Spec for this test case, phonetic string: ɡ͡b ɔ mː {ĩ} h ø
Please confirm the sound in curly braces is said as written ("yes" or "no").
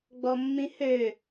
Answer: yes